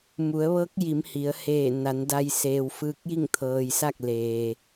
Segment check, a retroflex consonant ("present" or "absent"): absent